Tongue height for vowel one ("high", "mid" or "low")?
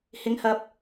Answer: high